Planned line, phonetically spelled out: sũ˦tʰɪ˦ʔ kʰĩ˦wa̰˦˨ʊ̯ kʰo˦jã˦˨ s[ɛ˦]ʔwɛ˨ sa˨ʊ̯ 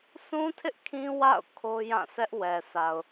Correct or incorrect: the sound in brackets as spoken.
correct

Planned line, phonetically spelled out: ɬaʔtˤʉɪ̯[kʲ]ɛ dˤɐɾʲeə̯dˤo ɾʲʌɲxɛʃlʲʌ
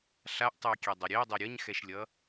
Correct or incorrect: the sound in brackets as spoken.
correct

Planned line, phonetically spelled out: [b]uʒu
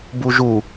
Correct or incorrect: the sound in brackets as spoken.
correct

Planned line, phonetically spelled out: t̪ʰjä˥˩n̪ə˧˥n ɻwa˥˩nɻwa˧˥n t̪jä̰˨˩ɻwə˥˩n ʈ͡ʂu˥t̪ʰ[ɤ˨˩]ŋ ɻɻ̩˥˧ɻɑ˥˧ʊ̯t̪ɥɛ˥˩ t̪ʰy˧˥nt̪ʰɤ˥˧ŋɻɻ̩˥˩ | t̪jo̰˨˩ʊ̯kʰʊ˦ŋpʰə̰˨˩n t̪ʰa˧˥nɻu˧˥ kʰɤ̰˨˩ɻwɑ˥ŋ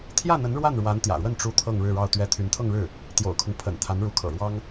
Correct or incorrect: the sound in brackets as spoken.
incorrect: ɤ˥˧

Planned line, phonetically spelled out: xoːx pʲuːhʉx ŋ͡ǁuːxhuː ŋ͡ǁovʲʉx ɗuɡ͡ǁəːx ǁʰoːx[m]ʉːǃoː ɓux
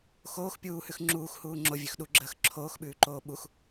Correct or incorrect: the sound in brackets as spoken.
incorrect: ɓ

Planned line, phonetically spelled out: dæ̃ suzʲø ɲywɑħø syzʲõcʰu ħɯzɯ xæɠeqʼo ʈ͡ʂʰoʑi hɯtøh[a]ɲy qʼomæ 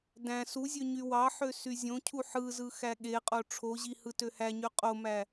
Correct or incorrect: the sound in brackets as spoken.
incorrect: æ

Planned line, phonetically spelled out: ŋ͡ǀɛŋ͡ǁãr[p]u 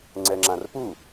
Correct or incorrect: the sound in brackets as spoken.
correct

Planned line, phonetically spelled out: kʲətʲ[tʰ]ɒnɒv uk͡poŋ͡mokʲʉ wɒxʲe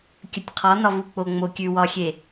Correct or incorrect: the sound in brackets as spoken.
incorrect: qʰ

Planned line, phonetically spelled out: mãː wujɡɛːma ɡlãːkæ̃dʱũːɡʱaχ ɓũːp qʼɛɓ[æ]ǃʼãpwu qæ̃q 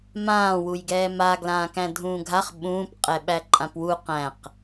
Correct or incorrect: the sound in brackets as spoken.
correct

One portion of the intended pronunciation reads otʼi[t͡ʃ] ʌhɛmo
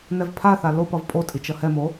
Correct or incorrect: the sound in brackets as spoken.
correct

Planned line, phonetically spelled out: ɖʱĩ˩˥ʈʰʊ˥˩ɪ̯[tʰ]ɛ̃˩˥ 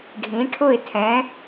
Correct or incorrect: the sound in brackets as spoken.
correct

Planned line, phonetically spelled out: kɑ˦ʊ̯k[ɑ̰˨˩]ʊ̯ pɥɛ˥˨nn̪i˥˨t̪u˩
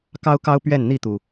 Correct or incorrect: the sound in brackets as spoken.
incorrect: ɑ˦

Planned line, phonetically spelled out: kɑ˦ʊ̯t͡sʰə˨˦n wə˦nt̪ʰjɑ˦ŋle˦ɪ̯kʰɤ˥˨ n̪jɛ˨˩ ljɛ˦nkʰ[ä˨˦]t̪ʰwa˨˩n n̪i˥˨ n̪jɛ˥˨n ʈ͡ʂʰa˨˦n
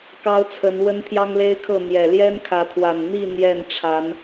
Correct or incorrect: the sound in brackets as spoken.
correct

